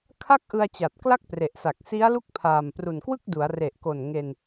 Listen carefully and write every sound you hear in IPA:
kʰ a˥˩ k̚ ʔ ɯ˧ a̯ t͡ɕ a˨˩ t̚ k l a˥˩ k̚ p r e˨˩ ʔ s a˨˩ k̚ s i˦˥ a̯ l u˦˥ k̚ pʰ aː˨˩ m p r u˨˩ n k w ɯ˥˩ k̚ d u˩˦ a̯ r e˨˩ ʔ k o˨˩ n ŋ e˧ n

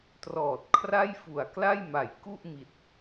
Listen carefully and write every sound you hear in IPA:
t r ɔː˨˩ t̚ kʰ r a˥˩ j f u˨˩ a̯ k l a˥˩ j m a˩˦ j k u˥˩ ʔ m i˨˩ t̚

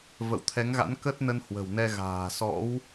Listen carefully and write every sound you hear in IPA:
v ə̰˧˨ w t̪ʰ ɛ˨˦ ŋ ɣ a̰˧˥ n k ə˦˥ t̚ n ə˧ n h w ə̤˨˩ w n ɛ˧ ɣ a̤ː˨˩ s ɔ̰˧˥ w

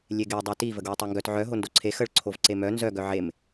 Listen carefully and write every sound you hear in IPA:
lʲ e ɡ e dˤ œ t i v ə ɡ w e tˤ e ŋ ɡ œ t ʕ œ ɦ o n d o ǀʰ e x ə ɭ ǀʰ o v ǀ e m œ n z œ ɡ œ ʕ e m

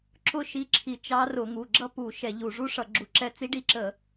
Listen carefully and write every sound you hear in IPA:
ǁ ʊ˥˧ ʃ i˧˥ ǁʰ i˧˩˧ t͡ʃ ɑ˧˥ r ʊ˧˩˧ ŋ u˩˧˩ ɡ͡ǁ ʌ˥˧ p u˧˩˧ ʃ ɛ˧˩˧ ʎ u˧˩˧ ʐ u˧˥ ʂ ʌ˧˩˧ ɡ͡ǁ u˧˩˧ ǁ ɛ˧˥ t͡s i˧˥ ɖ i˧˥ ǁ ə˧˩˧

